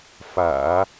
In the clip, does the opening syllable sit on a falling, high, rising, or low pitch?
low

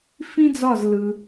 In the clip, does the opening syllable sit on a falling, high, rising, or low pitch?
high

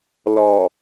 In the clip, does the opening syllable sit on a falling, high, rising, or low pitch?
low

